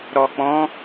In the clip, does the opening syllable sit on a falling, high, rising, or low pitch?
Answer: low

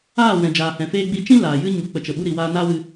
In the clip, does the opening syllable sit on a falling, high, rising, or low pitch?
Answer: falling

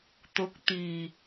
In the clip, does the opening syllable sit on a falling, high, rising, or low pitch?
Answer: rising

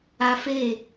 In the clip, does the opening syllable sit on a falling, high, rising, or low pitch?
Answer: high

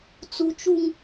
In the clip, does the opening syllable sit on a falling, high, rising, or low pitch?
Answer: high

